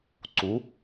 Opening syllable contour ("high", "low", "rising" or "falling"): rising